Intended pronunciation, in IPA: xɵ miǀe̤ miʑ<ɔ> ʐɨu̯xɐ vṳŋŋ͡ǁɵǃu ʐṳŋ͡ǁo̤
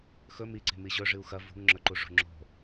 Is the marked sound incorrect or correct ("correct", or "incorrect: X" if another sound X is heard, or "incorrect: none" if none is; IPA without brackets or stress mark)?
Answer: incorrect: ɵ